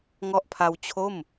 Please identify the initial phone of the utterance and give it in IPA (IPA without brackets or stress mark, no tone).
ŋ